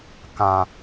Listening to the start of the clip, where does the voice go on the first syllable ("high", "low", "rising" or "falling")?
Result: low